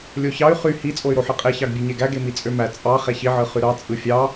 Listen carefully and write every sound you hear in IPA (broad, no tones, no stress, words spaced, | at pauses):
lʲoçɑy̯ χy hi t͡sʼoy̯ɾoħɯqʼe çɑɡbʲøɲeɡæ ɡemit͡sʼømæ t͡sʼɑ χeçi ʕɯχyɾɑ t͡sʼɯfʲɑ